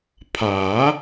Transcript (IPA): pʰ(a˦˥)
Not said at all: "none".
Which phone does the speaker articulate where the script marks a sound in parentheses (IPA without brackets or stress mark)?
a˨˩˦